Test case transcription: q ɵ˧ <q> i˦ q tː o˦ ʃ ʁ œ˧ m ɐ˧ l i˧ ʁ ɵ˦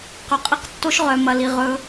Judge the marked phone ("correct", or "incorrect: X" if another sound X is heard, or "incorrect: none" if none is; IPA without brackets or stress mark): incorrect: qʼ